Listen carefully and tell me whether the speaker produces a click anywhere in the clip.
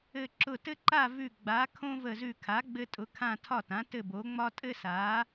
yes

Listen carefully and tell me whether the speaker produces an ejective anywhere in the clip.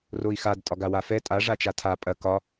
yes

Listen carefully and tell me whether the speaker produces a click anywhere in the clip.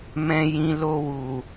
no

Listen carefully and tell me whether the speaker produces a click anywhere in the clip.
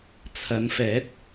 no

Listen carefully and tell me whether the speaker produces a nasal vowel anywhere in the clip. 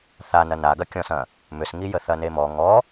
yes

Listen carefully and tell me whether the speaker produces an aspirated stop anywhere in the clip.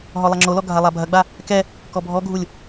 no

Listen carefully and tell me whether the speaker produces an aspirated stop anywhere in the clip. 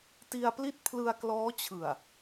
yes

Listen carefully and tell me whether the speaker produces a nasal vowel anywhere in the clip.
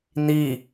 no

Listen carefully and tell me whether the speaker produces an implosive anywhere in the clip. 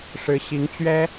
no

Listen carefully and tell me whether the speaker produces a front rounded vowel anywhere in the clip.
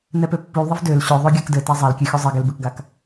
yes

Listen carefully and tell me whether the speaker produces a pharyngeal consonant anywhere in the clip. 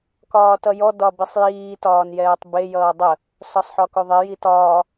yes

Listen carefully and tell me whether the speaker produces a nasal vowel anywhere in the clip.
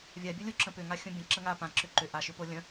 yes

